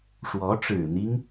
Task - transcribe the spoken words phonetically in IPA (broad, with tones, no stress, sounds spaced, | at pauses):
ʂ w ɔ˧˥ ʈ͡ʂ ɻ̩˨˩ n̪ i˦ ŋ